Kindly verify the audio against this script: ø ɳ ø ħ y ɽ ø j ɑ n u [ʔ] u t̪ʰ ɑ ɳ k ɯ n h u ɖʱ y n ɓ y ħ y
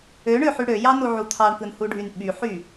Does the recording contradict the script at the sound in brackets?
yes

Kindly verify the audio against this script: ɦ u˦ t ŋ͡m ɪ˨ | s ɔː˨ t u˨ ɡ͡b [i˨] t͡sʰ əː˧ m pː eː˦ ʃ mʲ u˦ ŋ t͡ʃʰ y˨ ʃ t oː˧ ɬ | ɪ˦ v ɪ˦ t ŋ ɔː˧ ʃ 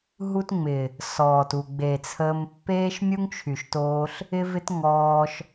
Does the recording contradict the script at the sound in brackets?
yes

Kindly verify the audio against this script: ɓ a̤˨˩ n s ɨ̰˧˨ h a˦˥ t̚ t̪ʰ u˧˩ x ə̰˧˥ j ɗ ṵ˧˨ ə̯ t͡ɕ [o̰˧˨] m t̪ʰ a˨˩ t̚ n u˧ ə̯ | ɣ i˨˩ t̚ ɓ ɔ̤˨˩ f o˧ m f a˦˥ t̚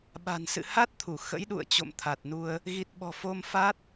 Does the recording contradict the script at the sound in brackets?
no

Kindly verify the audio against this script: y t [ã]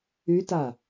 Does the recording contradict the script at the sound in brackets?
yes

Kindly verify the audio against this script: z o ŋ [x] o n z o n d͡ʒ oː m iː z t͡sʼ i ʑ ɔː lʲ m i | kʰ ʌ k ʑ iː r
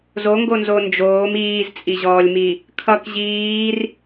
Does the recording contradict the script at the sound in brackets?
yes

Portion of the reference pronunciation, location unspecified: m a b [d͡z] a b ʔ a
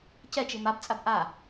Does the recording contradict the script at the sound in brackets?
yes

